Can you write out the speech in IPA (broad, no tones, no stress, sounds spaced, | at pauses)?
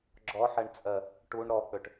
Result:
ɡ͡ǁ ɔ ħ ɛ ɳ t͡sʼ ɜ | ʈ u ɳ ɾ ɔ k͡p ø ʈ